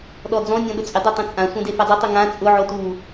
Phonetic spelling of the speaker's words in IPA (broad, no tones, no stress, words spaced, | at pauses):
ɗɔd͡zɔ̃nʲɔ̃ ɗʊt͡sʼɪdˤe tˤɛ̃t͡sʼãsʷã defɛdˤʊtˤu ŋã t͡sʼʊʕo tu